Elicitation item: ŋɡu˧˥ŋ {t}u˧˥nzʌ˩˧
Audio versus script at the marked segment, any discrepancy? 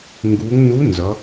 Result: yes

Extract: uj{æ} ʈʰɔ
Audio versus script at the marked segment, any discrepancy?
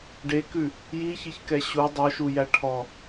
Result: no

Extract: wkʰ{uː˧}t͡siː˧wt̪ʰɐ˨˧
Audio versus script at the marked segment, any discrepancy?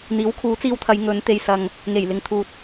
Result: yes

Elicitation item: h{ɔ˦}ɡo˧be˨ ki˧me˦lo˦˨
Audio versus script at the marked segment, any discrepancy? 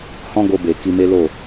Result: yes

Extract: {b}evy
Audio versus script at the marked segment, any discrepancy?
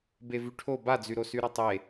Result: no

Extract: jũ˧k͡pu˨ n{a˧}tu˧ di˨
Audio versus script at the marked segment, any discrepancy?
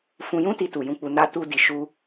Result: no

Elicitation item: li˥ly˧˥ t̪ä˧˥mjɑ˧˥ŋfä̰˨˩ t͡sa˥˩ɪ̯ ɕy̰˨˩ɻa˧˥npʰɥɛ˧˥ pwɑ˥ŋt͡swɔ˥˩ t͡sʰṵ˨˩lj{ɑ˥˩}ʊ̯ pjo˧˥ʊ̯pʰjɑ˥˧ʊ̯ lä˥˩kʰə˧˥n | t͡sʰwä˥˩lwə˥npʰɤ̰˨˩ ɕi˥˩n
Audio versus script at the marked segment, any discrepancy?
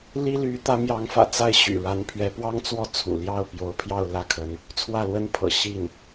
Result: no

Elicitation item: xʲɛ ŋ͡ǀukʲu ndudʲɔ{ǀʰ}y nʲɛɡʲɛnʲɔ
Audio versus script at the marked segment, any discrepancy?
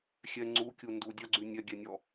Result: yes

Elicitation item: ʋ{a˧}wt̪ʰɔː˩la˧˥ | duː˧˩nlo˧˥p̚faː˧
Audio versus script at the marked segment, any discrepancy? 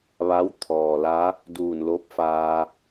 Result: yes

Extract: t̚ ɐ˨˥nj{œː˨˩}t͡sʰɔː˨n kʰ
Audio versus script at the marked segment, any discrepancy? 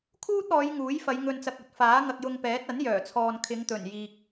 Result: no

